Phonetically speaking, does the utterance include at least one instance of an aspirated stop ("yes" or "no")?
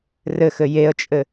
no